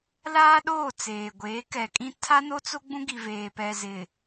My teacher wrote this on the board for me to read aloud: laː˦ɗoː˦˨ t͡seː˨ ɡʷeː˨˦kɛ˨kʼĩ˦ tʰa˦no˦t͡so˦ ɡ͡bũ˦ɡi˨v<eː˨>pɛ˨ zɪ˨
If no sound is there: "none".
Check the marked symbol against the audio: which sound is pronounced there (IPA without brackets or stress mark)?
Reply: eː˨